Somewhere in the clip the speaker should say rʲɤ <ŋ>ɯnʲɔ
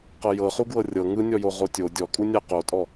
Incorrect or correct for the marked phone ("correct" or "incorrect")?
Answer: correct